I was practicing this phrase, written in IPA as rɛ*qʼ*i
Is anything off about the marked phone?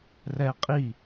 no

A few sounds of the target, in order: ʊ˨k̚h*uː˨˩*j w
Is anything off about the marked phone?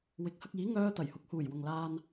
no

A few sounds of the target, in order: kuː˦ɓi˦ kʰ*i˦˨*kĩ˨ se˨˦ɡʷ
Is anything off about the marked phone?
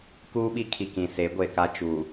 yes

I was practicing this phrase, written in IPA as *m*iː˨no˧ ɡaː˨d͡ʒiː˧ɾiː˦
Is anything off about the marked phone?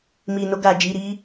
no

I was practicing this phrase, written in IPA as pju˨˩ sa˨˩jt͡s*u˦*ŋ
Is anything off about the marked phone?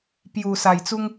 no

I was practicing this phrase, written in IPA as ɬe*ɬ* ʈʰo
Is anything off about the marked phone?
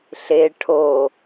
yes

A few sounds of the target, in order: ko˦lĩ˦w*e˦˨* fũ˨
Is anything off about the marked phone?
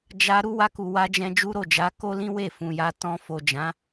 no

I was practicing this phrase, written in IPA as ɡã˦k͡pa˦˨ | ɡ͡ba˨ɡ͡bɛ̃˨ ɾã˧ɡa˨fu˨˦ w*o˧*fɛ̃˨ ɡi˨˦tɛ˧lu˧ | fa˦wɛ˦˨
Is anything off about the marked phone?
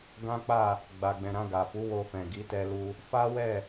no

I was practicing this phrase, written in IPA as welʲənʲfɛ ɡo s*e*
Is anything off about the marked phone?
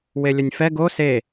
no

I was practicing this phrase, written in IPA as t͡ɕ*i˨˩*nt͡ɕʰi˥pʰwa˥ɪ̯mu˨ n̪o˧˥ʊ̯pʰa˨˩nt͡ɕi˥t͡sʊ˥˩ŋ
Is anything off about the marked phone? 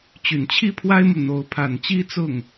yes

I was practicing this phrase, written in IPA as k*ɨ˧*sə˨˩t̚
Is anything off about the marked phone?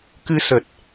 no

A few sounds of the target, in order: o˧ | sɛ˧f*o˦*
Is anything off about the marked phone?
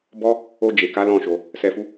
yes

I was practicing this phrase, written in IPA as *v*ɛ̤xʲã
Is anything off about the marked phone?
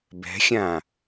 yes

